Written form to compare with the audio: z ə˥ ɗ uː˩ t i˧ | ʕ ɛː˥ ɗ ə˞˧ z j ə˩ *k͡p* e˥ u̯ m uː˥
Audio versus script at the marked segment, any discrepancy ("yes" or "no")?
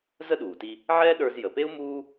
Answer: yes